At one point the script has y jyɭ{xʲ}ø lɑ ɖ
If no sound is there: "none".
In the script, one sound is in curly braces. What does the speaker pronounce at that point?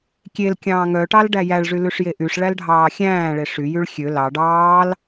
xʲ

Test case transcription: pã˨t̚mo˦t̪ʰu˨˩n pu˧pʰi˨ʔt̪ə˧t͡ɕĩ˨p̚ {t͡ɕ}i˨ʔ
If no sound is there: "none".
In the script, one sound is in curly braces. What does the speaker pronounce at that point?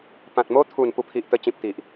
t̪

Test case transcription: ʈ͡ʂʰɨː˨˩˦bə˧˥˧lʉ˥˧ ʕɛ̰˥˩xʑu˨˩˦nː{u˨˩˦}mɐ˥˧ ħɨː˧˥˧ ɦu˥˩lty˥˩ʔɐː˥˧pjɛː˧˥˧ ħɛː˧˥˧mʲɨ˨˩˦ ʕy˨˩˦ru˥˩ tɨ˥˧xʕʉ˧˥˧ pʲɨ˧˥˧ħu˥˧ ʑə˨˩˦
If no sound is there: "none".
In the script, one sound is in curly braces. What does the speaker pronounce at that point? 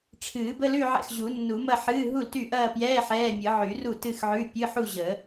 u˨˩˦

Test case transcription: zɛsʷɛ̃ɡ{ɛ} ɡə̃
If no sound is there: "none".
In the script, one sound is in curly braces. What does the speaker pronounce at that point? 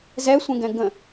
ɛ̃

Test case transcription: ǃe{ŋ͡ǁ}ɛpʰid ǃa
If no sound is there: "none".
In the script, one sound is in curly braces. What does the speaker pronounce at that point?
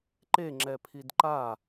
ŋ͡ǁ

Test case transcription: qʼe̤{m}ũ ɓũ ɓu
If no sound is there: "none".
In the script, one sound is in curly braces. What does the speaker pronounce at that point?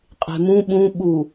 m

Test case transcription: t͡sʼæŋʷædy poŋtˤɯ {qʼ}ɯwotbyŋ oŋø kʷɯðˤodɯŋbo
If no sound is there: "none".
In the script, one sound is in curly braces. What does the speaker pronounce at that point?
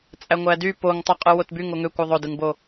qʼ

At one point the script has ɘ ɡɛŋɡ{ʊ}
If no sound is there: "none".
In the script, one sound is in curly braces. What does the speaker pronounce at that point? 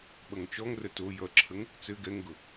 ʊ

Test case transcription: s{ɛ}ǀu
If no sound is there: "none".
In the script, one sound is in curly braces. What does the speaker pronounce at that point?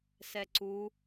ɛ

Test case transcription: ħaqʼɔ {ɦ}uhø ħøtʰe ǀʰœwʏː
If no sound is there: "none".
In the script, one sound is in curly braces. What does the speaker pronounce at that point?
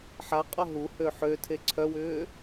ɦ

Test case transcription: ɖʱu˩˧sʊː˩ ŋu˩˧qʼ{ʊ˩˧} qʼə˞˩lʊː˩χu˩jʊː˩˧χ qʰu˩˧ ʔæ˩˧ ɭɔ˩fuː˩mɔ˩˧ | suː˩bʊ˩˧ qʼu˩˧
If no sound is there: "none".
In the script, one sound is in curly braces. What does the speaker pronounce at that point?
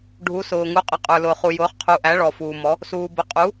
ə˩˧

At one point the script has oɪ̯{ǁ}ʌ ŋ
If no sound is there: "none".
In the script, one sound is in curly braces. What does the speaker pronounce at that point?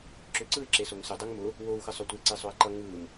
ǃ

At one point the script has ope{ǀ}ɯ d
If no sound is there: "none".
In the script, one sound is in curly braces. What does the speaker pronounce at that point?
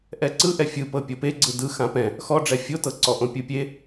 ɡ͡ǀ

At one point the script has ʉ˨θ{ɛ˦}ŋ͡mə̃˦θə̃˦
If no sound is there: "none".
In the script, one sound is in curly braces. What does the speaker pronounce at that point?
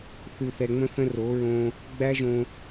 ɛ˨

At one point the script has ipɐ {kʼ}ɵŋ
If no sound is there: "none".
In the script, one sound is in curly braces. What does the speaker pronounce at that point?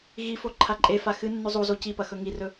x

